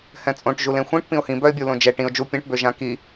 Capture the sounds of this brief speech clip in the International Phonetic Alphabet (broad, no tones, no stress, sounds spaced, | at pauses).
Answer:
h ɛ̃ t͡sʼ õ ʈ ʒ u l ẽ xʷ ĩ ʈ p ĩ ʊ̯ h ĩ b œ ɪ̯ bʲ u l õ d͡ʒ ɛ ʈ ĩ ʊ̯ d͡ʒ u pʲ ɛ̃ ʈ b ø ʒ ã k i